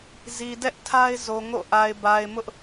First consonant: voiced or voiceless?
voiced